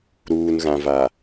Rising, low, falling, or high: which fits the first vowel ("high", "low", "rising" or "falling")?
low